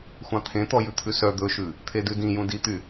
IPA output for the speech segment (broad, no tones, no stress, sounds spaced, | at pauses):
xʷ ɑ̃ t̪ʰ ẽ t̪ ɔ j ʉ t̪ʰ ʉ s œ d̪ ɵ ʃ ʉ | t̪ʰ e d ʉ d ĩ j ũ d i t̪ y